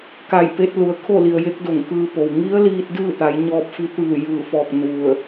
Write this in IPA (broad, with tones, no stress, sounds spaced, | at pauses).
k a˧˩ j p e˧ t̚ l u˩ ə̯ kʰ o˥˨ l i˩ ə̯ j e˧˥ k̚ d o˧˩ ŋ k ɯː˧ p o˩ w ŋ i˧˥ ə̯ l iː˧ t̚ d ɯː˥˨ t̪ a˩˧ j ɲ ɔː˧ p̚ f i˧˥ t̪ ɯː˧˩ j ɯː˧˩ f ɔː˧˩ k̚ n u˧˩ ə̯